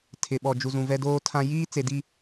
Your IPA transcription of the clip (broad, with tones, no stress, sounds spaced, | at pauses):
tʰ ɪ˨ ɓ ɔ˨ d͡ʒ u˨ z ũ˨ v ɛ˦ d oː˦ tʰ ã˦ j iː˦ t͡s e˨ d i˨